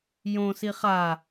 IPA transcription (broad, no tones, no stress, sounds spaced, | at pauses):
j õ s i χ a